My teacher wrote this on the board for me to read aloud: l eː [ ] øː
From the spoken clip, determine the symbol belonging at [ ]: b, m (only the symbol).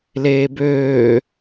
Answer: b